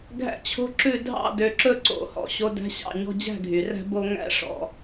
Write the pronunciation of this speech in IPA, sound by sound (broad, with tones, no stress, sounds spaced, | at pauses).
ɡʱ æ̰˥ t͡ɕʰ o̤˥ ǁ ʉ˥˧ dʱ ɑ̰˥˧ d ø˧ ǁ ɵ˥˧ ǀ o̰˧˩ h ɔ̰˧ ɕ o˧ d æ̤˥ ɕ ɑ̰˥˧ ɲ ɔ̤˥ d͡ʑ æ̤˥˧ ɡʱ y˩˧ r æ̤˥ b o˥ ŋ æ̰˥ ʂ ɔ̰˧